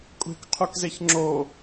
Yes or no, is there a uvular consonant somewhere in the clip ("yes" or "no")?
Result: yes